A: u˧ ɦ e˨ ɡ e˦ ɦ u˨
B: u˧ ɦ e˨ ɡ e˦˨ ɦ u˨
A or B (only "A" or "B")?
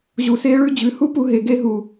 A